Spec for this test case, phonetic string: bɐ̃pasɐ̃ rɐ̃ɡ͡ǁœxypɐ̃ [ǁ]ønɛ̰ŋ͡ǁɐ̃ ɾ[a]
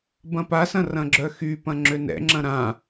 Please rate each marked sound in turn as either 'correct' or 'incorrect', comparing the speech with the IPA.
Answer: incorrect: ŋ͡ǁ, incorrect: ã

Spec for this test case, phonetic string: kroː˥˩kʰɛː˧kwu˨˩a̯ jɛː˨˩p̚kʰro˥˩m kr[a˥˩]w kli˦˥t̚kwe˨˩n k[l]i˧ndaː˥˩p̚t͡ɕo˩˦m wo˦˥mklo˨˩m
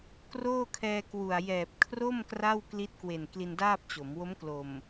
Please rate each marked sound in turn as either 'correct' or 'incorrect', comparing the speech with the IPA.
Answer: correct, correct

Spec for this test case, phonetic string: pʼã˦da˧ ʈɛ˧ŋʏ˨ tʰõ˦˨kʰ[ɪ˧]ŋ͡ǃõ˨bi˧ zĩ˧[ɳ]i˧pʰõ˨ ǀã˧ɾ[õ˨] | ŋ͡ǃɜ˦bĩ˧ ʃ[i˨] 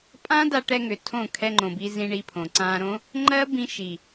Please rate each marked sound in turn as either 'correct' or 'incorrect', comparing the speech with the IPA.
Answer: incorrect: ɛ˧, correct, incorrect: õ˦, correct

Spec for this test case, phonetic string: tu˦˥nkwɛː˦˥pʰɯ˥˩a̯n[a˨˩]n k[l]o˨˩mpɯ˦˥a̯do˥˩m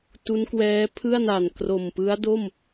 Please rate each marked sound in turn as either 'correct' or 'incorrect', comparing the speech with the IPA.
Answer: correct, incorrect: r

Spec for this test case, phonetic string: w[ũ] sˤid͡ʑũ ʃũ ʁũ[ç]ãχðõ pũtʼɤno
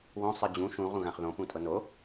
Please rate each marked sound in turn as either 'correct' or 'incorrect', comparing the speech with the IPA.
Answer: incorrect: õ, incorrect: ɣ

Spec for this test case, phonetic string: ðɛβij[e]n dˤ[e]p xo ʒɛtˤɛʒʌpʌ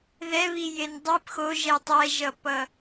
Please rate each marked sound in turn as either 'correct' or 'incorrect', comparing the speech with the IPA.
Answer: correct, incorrect: i

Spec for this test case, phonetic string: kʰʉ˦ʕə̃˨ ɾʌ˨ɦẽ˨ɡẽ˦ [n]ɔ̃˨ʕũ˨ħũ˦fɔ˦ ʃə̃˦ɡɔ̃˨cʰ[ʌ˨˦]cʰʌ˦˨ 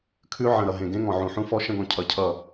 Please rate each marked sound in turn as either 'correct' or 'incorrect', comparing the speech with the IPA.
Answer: incorrect: ŋ, correct

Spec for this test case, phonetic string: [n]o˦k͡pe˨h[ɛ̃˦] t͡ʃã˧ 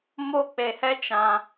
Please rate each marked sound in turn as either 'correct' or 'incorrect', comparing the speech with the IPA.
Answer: incorrect: m, incorrect: ɛ˦

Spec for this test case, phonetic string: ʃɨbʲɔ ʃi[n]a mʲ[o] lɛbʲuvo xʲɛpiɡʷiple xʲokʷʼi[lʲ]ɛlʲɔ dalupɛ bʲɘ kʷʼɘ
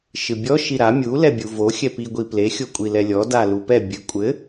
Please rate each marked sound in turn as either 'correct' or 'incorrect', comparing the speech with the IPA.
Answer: incorrect: ɾ, incorrect: u, incorrect: l

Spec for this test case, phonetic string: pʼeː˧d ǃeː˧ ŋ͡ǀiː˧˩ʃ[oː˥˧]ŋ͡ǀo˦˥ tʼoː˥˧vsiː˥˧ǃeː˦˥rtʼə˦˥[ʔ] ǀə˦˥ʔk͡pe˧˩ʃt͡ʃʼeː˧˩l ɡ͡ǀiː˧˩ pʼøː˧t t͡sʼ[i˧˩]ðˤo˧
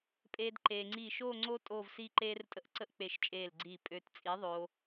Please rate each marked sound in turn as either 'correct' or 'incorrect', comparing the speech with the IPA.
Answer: correct, correct, incorrect: i˨˥

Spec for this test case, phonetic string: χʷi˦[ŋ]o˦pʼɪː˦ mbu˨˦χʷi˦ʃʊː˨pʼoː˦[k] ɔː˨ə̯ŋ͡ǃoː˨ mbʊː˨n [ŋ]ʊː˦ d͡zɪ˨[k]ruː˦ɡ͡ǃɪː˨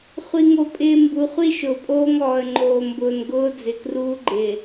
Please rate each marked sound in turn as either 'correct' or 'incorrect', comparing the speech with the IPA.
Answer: correct, incorrect: ŋ, incorrect: ɡ, correct

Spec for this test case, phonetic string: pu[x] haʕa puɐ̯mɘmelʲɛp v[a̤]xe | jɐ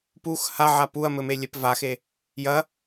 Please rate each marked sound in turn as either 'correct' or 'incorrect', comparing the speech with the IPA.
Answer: correct, incorrect: a

